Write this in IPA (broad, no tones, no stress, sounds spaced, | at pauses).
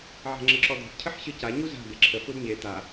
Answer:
ʕ a̤ ŋ͡ǁ ə ǁ ɔ d̪ ɔ̤ ʈ cʰ ə ħ ɕ ɨ c a ɲ u z a̤ d̪ e ǁʰ ə f u d ɲ e t̪ a